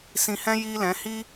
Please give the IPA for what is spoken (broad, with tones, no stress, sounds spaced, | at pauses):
s ĩ˧ h ɛ̃˦ j iː˦ l ɛ̃˨˦ h i˦